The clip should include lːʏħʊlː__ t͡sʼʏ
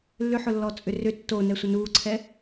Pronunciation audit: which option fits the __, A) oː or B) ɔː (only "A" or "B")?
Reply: B